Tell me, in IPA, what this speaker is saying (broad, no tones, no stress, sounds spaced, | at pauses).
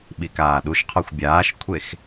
ɓ i k aː ɗ u ʃ qʰ ɔ xʷ bʲ aː ʃ kʷʰ e x